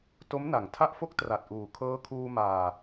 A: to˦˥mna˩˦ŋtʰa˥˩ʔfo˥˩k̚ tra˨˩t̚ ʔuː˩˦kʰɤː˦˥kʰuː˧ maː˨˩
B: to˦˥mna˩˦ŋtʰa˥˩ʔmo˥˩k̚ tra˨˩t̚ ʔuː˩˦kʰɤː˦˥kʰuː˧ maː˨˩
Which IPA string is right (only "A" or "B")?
A